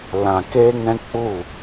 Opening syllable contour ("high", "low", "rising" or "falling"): low